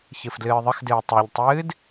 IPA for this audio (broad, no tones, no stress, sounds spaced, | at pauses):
ç ɨ f d l ɨː ðˤ ə x d ɨː tˤ ɛ ʎ tˤ ɨː d